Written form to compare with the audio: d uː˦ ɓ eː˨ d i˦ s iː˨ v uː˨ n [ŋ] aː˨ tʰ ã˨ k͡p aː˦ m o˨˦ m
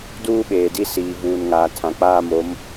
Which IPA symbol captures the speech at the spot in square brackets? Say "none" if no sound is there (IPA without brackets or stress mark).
ŋ